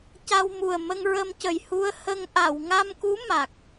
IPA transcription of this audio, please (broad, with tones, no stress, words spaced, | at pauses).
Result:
ca˧wmu˨˩ə̯ mə˧ŋɹə˧mcə˨˩j hu˧ə̯hə˧ŋ ʔa˨˩˨wŋa˧mku˧˥ ma˨˩k̚